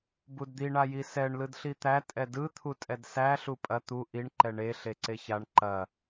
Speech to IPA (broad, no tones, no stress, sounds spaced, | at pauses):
b u d d̪ i ɳ a j i s ɛ ɳ l ɯ d ɬ i t̪ æ tʼ ɛ d ɯ t̪ʰ u tʼ ɛ d s æ ɬ u pʼ ɐ t̪ u ʔ i ɳ ǃ ɛ ɳ e ɬ e ǀ e ç a ɳ ǃ ɐ